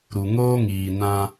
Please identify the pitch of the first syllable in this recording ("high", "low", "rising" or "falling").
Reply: low